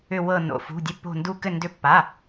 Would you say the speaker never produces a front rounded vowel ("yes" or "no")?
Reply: no